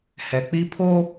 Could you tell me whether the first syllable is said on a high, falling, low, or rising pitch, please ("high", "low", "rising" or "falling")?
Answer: low